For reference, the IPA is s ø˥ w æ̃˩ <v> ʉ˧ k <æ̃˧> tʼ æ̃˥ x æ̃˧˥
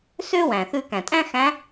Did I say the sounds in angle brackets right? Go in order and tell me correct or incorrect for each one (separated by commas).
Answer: incorrect, incorrect